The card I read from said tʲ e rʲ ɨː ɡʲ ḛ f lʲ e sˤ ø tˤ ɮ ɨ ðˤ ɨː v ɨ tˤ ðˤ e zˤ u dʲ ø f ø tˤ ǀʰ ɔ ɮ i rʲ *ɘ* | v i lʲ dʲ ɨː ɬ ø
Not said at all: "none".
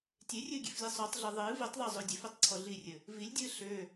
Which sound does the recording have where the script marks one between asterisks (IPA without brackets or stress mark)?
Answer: ɘ